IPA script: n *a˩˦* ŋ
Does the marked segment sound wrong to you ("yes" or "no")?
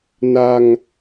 yes